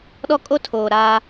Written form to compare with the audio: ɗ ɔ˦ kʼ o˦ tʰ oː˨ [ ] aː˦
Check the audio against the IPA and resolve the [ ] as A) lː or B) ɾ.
B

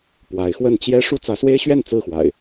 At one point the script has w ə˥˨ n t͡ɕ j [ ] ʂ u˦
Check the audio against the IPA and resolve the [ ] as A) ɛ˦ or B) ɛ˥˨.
A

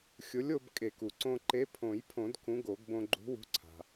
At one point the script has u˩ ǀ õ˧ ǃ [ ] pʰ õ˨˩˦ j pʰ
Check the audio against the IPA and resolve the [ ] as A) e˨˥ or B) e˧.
A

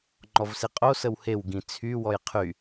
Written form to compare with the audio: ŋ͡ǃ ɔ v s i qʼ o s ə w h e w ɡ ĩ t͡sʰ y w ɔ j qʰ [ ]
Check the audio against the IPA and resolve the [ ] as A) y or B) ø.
A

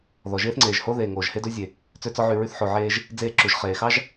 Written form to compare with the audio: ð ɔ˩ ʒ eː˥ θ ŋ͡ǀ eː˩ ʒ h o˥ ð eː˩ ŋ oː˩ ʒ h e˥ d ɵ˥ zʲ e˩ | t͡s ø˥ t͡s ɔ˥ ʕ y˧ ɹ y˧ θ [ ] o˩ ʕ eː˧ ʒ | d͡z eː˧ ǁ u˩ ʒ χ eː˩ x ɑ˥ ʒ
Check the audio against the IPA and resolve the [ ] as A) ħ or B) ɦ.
A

